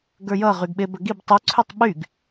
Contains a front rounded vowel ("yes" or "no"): yes